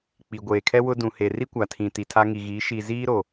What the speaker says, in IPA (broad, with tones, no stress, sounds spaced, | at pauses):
k͡p i˨ ɡʷ eː˨ kʰ ɛ˦ w ʊ˦ d ũ˨ h e˨ r i˦ kʷ a˨ tʰ ĩ˨ t i˨ tʰ a˦ ŋ i˨ ɣ iː˨˦ ʃ i˨ z iː˦ ɾ o˨